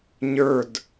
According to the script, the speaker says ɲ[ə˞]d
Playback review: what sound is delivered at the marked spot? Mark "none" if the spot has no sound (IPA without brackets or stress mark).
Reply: ə˞